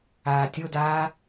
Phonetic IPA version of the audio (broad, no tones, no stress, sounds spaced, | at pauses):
aː tʲ o d aː